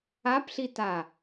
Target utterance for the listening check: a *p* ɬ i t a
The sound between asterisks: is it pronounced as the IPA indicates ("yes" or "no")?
yes